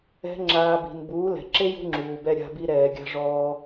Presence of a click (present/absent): present